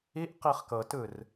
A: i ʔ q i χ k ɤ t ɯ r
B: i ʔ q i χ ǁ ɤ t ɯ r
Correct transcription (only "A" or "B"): A